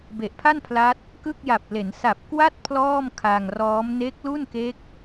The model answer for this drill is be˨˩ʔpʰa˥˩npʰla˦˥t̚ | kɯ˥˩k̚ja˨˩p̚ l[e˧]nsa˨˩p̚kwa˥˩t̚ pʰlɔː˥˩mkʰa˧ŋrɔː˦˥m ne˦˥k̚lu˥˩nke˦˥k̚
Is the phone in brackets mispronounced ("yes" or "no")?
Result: yes